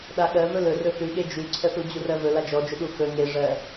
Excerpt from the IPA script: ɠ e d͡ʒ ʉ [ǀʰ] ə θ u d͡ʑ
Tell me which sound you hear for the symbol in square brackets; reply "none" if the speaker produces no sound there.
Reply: ǀʰ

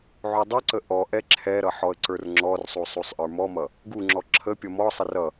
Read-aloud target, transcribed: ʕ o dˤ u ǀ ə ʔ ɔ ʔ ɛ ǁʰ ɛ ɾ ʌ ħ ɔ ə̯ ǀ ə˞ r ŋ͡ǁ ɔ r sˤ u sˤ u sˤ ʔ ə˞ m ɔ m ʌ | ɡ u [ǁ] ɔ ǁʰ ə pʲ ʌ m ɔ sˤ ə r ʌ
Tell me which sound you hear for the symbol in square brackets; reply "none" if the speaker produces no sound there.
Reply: ŋ͡ǁ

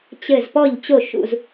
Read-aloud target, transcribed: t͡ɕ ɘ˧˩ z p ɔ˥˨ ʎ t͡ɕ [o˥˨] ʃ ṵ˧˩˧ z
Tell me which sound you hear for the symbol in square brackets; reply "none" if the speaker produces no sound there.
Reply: o˥˨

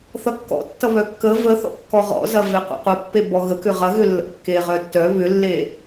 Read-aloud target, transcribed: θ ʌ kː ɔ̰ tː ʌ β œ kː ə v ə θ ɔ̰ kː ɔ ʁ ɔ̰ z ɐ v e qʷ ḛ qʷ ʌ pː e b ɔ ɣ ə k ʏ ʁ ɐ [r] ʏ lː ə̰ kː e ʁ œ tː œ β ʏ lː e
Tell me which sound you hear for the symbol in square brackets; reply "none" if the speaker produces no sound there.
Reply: ɣ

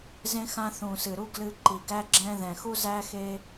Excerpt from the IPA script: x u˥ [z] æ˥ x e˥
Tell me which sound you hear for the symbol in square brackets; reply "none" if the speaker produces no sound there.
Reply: z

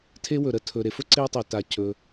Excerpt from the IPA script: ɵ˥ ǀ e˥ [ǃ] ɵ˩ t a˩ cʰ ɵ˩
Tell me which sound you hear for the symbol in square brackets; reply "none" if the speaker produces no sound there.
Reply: tˤ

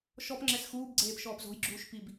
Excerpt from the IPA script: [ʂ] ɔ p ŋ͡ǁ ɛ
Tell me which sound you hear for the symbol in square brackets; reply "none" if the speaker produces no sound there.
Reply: ʃ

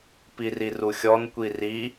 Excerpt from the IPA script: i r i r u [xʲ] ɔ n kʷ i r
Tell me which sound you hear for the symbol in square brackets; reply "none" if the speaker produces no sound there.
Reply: xʲ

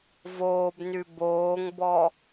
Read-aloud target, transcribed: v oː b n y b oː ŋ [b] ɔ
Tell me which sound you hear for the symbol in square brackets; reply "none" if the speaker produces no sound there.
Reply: b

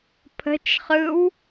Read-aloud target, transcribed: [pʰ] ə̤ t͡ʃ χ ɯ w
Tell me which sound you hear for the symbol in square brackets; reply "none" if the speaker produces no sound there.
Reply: pʰ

